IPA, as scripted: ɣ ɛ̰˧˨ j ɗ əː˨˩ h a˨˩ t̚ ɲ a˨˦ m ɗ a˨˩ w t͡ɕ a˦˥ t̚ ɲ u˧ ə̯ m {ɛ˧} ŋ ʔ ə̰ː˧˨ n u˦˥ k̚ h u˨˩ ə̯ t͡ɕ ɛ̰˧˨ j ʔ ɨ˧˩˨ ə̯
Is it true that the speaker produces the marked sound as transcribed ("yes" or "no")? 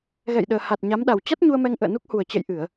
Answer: yes